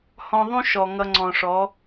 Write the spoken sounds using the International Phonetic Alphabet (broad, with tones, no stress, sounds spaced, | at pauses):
h ɔ̃˧ ðˤ ũ˦ ʃ ɔ˨ ŋ ʌ˧ ŋ͡ǀ ɔ̃˨ ʂ ɔ˨˦